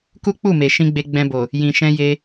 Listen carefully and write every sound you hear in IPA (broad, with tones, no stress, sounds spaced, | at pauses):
k u˦ k͡p u˦˨ m e˨ ʃ ĩ˧ ɡ͡b e˧ ɡ͡b ɛ̃˧ b o˨ | j ĩ˨ ʃ ɛ̃˧ j e˧